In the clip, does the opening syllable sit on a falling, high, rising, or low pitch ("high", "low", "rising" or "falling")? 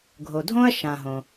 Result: low